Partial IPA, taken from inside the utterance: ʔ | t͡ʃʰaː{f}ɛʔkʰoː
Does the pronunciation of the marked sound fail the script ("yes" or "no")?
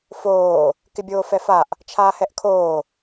yes